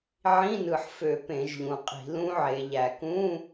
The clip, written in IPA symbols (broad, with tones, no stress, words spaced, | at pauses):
ʕĩ˧˥˧nɯ˨˩ħfø˧˩˧ pẽ˧˩˧ʒʎũ˩˧qʼi̤˧˩˧ lũ˦˥ʕe˩˧ʎæ˨˩ kũ˧˥˧